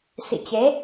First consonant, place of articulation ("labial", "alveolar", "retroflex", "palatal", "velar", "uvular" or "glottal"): alveolar